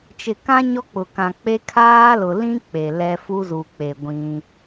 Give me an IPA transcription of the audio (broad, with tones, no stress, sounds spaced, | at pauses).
t͡ʃ ɪ˨ k ã˦ ɲ ɔ˦ k͡p ʊ˨ k ã˨ k͡p e˦ kʰ aː˦ l ʊ˨ l ĩ˦ k͡p e˨ l ɛ˦ f u˦ z u˨ k͡p e˨ ɡʷ ĩ˦